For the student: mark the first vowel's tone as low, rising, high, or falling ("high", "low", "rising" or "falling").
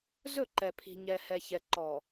falling